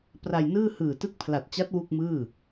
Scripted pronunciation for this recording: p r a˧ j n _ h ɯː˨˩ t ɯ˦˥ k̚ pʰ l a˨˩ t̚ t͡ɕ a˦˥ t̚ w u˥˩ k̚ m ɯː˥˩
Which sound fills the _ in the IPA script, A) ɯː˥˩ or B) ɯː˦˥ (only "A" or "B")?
A